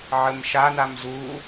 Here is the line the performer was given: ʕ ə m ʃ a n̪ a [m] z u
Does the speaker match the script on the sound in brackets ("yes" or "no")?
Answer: yes